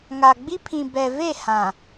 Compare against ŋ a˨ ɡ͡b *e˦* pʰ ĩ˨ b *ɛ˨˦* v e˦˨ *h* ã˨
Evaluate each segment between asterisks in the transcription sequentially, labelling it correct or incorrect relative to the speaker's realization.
incorrect: i˦, incorrect: ɛ˨, correct

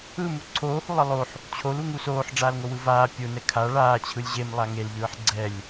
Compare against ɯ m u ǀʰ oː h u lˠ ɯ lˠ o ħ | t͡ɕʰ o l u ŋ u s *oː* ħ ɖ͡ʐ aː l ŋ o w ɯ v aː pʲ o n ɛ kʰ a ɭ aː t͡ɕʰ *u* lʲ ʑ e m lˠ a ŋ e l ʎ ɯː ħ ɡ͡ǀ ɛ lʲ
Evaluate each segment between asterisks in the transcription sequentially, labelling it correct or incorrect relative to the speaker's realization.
correct, incorrect: ɯ

